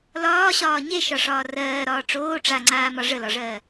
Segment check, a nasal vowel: absent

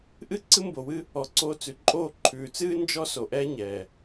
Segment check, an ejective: present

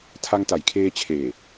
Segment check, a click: absent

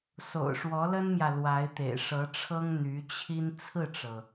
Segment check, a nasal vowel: absent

